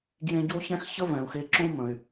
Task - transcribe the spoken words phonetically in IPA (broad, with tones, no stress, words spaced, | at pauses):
ɡjẽ˧ɟo˥çɛ̃˥x çə˥vɛ̃˩u̯xe˧ǁõ˥ mə̃˩y̯